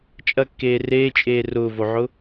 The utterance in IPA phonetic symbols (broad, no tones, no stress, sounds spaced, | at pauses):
t͡ʃʼ ɐ kː eː r eː t͡ʃʼ eː r ʊː v o ʕ ʊ